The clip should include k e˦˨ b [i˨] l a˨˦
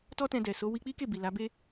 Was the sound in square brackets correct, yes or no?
yes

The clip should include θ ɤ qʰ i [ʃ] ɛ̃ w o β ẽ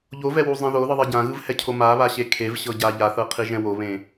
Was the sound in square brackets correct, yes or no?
no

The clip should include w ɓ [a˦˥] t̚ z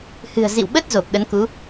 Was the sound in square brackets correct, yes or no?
no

